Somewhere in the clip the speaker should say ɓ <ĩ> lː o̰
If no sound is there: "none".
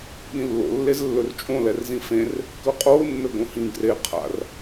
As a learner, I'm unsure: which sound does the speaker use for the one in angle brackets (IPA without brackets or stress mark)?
ĩ